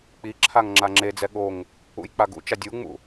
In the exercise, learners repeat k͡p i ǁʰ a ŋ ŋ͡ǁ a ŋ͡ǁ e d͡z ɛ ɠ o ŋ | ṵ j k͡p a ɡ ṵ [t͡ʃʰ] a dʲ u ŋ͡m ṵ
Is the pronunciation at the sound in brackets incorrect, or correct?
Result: incorrect